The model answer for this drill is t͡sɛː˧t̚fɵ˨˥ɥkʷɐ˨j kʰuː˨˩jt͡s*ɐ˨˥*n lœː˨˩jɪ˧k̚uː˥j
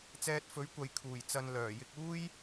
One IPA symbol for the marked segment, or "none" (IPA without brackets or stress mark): ɐ˨